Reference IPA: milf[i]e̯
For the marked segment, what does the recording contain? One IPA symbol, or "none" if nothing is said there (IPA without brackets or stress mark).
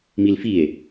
i